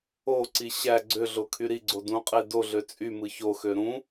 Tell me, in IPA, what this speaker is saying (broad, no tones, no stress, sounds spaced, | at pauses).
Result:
o ǀ i ɕ æ ɡ͡ǀ ø ɮ o kʰ y ɾ i ɡ͡ǀ o d ũ qʼ e d o ɮ ø t͡sʼ y m ɯ ç o x ø ɾ ũ